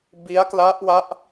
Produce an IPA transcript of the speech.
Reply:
bi˦˥a̯kla˦˥ʔwa˦˥ʔ

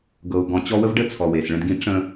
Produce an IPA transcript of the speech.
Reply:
ɡɤ˨u̯ɡɔ̃˨t͡ɕɔ˦ wə˦vɖə˦t͡sʰɔ˨ we˨sɭə̃˦dɡĩ˦ ʈ͡ʂə̃˨

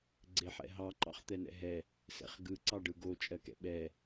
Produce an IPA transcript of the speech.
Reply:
ɡ͡ǀeħɛ̰ɦɑ ǃɑ̰χt̪ɛnɛ̰ɦɛ | sɛ̰χɡɯ ǀɑɖɯɡo t͡ʃʼɜkɛ̰ɓɛ

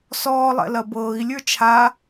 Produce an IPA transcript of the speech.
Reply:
sɔːlˠɛ̰lɐ bɤːi̯lʲə˞ t͡ʃʰa

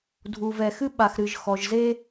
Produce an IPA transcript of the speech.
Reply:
dʱu˨vɛ˨ xɨ˦ɓa˨xɾɨ˨ʒ xɔ˨ʒze˦

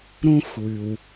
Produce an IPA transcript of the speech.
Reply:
ɾũ˦xʷwʉ˩w

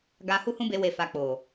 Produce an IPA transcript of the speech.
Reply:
ɡa˧hu˦hũ˦be˧ we˨fa˨ k͡po˨

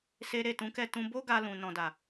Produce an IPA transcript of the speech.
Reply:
se˦ ɾe˦˨tũ˨˦kɛ˦˨ tũ˧bo˦ ɡa˧lũ˨ nɔ̃˨da˨

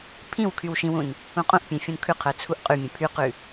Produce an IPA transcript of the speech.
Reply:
pʰĩw kʰywʃĩwũn | ũqʼũʔpʲẽ fʲũnkʰʉqʰœ t͡sʰuʔqʼymʲẽ pʰyqʉ

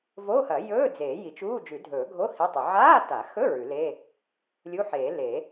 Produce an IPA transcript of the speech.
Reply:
vo˧˥˧hɐ˨˩˦ jɵː˧˥˧ d͡zeː˨˩˦ji˨˩˦t͡ʃuː˧˥˧ d͡ʒʉ˨˩˦dʱɵː˨˩˦ɡʱo˧˥˧ hi˧˥˧tˤe˨˩˦ ʕaː˧˥˧ta˨˩˦xɵ˧˥˧ ɹʉ˨˩˦le˧˥˧ | lʲu˧˥˧ħeː˨˩˦ le˨˩˦

